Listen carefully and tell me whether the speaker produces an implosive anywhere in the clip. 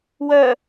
no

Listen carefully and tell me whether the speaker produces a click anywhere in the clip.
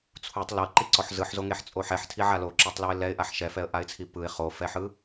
yes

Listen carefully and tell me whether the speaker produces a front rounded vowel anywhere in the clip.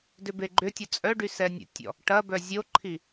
yes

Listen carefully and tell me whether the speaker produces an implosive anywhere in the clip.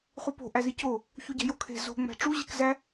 no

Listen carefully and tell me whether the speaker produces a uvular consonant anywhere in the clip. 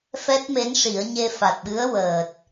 no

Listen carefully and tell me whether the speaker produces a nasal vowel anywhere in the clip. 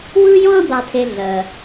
yes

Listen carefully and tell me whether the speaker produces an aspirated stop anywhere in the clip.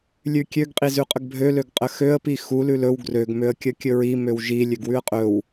no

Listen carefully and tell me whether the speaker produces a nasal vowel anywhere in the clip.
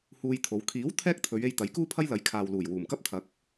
no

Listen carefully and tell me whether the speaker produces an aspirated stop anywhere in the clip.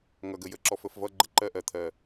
yes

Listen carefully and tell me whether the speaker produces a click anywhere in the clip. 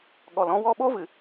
no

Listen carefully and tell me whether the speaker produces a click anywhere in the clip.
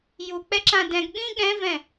yes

